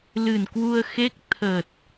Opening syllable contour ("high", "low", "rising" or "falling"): low